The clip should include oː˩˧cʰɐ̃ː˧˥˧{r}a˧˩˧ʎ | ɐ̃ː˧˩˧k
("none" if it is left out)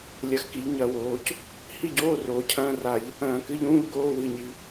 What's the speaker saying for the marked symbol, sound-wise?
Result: r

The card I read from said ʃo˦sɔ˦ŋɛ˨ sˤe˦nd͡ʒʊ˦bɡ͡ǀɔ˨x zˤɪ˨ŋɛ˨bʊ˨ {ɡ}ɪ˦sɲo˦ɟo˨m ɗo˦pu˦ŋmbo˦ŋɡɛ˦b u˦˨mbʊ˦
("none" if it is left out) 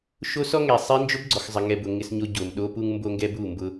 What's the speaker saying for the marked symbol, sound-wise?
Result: ŋ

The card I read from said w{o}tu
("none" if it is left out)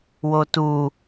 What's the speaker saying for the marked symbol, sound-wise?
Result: o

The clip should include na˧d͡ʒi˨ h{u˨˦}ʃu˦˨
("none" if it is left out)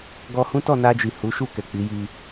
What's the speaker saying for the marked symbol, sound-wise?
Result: u˨˦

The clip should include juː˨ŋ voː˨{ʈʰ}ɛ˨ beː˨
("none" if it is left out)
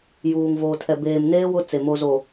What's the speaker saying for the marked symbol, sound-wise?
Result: tʰ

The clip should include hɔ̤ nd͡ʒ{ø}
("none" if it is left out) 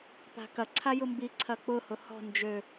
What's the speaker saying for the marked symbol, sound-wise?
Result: ø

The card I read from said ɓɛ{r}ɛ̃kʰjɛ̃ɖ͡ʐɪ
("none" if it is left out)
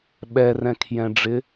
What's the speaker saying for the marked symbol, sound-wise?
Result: r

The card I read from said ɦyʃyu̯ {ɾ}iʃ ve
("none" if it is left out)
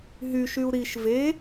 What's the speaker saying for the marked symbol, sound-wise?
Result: ɾ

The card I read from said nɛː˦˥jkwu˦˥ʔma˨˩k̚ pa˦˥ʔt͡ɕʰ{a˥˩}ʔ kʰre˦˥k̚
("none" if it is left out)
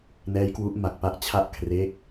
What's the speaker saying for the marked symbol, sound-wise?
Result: a˥˩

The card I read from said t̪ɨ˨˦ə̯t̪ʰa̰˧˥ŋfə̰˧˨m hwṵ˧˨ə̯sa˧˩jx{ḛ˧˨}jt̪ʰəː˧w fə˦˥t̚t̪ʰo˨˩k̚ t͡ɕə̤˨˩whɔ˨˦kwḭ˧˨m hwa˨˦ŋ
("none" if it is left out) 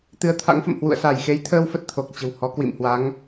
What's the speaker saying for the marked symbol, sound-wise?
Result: e˨˦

